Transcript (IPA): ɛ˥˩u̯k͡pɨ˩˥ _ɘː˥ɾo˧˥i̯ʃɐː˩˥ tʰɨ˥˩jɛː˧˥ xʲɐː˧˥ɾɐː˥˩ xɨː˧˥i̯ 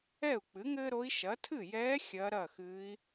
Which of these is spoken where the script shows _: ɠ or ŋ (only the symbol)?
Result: ŋ